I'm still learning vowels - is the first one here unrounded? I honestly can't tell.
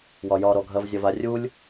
no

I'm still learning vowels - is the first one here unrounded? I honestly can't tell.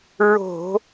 no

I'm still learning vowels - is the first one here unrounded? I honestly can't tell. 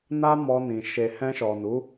yes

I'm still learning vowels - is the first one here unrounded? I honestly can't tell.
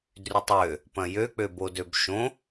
no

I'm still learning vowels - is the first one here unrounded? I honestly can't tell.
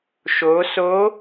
no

